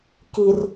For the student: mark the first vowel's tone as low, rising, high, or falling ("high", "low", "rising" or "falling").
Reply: low